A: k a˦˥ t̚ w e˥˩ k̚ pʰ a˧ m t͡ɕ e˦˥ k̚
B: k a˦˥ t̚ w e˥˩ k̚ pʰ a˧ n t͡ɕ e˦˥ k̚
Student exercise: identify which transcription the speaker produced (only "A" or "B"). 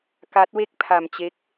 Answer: A